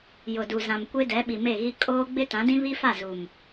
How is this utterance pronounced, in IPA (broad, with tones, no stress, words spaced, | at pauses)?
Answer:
jʊ˨du˨zã˨m kʷe˦dɛ˨˦ɓi˨ me˦˨ɣi˦ kʼoː˦ ɡ͡bɪ˦tã˨˦dĩ˦ βi˦fa˦˨zu˨m